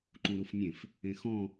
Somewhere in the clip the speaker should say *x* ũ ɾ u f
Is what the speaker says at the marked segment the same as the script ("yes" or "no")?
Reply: no